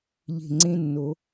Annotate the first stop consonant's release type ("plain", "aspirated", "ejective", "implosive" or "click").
click